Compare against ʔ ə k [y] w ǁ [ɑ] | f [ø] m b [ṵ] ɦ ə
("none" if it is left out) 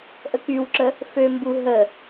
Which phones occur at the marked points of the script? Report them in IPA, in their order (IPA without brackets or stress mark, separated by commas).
y, ə, ø, u